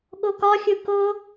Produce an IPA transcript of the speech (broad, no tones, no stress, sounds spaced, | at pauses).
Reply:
ɠ o k ɒ xʲ ɯ k o